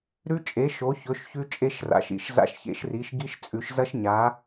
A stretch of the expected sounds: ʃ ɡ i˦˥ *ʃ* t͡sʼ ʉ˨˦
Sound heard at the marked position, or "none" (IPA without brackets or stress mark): ʃ